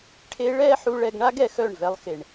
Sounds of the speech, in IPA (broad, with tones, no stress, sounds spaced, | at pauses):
ʈʰ e˧ ɭ ɛː˦ ħ u˧ ɭ ɛ˧ ɡ ɳ a˦ ɡ ɛ˨ x œ˦˨ ɳ v ɛ˧ lˠ x e˨ ɳ